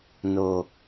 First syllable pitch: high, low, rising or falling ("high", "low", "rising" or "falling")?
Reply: low